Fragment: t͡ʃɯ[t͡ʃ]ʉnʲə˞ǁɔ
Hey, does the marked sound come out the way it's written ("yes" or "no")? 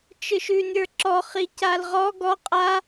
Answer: no